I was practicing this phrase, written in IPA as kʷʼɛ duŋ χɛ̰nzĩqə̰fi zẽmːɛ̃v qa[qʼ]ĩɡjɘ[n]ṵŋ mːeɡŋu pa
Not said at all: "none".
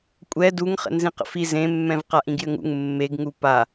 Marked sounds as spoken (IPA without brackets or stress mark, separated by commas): ʔ, ŋ